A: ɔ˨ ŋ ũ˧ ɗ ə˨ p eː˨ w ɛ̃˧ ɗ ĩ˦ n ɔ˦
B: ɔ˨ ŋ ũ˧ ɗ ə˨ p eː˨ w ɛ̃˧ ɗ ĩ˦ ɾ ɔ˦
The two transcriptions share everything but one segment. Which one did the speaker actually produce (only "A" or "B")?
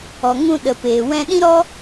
B